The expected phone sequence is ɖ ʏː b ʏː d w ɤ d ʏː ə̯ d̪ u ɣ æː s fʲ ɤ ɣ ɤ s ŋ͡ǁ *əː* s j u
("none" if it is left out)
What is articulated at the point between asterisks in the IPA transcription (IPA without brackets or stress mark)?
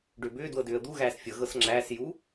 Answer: æː